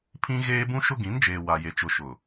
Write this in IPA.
pʰ ĩ˦ ɣ eː˦ b ũ˦ ʃ ʊ˦ ɡ ĩ˨˦ n d͡ʒ eː˨ w a˨ j e˨ t͡ʃ ʊ˨ ʃ ʊ˨

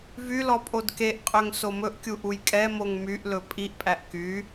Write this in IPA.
v y l ɔ pʼ o d k e ʔ qʼ ø ŋ s o m ɵ ʔ kʲ u ʔ u j kʼ ɛ m o ŋ m y ʔ l ɵ pʼ i ʔ pʼ æ ʔ k y

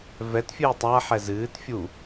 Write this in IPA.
v ɛ t fʲ ɨː tˤ a ħ ɛ z ɨː t fʲ u

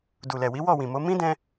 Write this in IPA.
d u˨ l ɛ˨ w i˨˦ w ɔ˦˨ w ĩ˨ m o˨˦ m ĩ˦ d ɛ̃˧

